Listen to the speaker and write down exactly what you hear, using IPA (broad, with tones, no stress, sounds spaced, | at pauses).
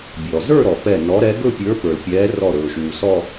bʲ ɔ˩ z ə˞˥˧ ɾ ɔ˩ p ɛ˧˩ n ɔ˨˦ ɾ ɛ˨˦ ɡ ɵ˥˧ pʲ ə˞˨˦ p ə˞˩ l pʲ ɛː˨˦ r ɔ˧˩ ɾ ɵː˩ ʃ uː˩ s ɔ˥˧